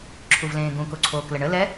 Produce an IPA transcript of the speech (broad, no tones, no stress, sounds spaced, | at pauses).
ǁʰ u v l ẽː ɡ ũ k o ǀʰ oː k l ə ɳ ə l ɛ